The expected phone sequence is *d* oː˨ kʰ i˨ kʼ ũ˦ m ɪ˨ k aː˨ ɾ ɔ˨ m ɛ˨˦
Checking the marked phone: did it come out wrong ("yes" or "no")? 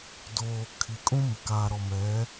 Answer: no